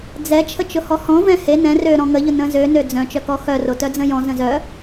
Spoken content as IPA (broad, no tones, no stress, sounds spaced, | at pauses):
d͡z ɛ t͡ʃʰ ə t͡ʃ ʊ h ɔ h ɔ̃ v ɛ̃ h e n ɛ̃ r ø ɾ ɔ̃ ŋ ə ʎ ʊ n ə̃ z ø n ø d͡z œ̃ t͡ʃ œ k ɔ x œ r o t œ d͡z ə̃ j ɔ̃ z ə̃ z œ